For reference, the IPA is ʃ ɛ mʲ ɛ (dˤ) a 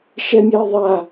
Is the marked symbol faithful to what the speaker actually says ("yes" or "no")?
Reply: no